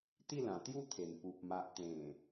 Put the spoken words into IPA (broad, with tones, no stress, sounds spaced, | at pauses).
t̪ i˥˧ l ã˨˩ t̪ j u˥˧ t̪ʰ e˨˩ n p u˨ p̚ m a˨ ʔ t̪ ẽ˨˩